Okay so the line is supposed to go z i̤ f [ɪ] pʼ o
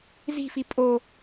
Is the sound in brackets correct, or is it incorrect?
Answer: incorrect